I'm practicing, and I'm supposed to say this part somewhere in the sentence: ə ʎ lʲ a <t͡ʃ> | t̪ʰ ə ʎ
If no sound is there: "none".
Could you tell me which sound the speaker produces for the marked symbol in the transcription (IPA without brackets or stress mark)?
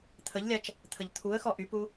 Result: t͡ʃ